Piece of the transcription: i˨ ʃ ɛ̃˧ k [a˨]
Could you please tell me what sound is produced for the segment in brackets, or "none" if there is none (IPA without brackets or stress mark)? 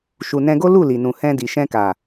a˨